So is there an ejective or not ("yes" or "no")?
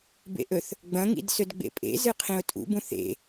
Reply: yes